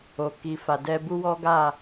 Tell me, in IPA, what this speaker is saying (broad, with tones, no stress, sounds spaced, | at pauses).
o˨ k i˨ f a˨ d ɛ˧ b u˦ w ɔ˦ ɡ a˦˨